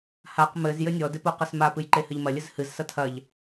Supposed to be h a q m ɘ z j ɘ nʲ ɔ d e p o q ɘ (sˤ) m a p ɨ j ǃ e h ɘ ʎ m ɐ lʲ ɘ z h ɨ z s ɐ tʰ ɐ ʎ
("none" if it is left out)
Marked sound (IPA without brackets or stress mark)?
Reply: s